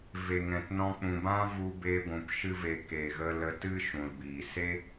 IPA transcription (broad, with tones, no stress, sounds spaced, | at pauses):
v e˨ ŋ ɛ̃˨ t n ɔ̃˧ k͡p ũ˨ b ã˦ v u˧ b e˧ ɡʷ ũ˨ p ʃ ɨ˧ v e˨ k e˨ ɣ ə˧ l ə˧ t ɨ˦ ʃ ũ˨ l b iː˨ s e˦